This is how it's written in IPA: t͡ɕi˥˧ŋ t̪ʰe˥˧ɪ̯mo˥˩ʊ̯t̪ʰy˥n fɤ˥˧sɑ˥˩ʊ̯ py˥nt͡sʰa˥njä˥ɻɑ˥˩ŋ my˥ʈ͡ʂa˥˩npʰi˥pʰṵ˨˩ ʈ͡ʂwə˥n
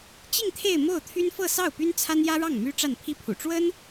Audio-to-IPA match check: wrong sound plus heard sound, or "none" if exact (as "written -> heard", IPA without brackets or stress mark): none